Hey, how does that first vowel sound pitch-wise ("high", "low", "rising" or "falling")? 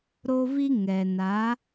high